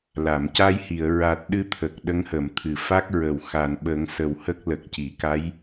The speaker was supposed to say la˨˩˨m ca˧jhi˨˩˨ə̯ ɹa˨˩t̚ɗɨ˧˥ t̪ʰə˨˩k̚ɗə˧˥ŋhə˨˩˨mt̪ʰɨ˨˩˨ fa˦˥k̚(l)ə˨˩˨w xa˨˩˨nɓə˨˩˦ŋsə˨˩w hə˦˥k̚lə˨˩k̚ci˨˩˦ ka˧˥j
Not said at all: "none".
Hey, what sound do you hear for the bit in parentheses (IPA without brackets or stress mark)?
ɹ